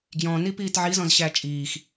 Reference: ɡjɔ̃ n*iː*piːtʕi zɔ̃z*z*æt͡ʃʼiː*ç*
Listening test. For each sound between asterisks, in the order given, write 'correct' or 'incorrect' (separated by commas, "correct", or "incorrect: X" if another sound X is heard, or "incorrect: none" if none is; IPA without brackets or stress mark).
incorrect: i, incorrect: ɕ, incorrect: x